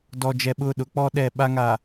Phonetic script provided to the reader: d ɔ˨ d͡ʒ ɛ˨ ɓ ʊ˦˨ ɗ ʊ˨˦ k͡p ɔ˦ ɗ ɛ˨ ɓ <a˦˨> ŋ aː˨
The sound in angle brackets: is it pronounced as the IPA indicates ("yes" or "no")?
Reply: no